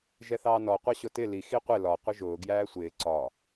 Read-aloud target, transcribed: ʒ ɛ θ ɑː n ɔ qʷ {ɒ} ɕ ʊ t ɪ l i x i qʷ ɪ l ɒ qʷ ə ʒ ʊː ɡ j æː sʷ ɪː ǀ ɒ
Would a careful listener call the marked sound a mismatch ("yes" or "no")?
yes